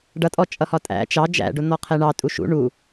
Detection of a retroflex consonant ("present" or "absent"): present